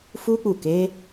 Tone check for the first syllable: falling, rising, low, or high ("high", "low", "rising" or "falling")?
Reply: high